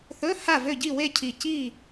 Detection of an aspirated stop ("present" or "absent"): present